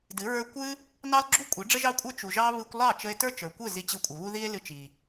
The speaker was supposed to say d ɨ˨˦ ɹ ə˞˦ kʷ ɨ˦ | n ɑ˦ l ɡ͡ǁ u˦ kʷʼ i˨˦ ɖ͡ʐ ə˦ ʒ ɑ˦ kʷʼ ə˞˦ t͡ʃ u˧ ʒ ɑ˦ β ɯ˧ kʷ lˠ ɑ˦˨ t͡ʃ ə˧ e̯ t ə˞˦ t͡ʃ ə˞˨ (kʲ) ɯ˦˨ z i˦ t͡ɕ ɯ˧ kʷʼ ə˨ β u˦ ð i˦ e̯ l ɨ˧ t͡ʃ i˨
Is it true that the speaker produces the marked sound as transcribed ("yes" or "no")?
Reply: no